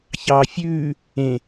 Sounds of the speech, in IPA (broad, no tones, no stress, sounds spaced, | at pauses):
ç ɑː fʲ ʉː | ẽ